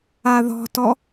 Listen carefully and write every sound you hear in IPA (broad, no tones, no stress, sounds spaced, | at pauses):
a ð ɔ̤ t ɔ